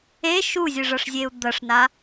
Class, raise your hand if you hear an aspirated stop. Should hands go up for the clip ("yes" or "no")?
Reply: no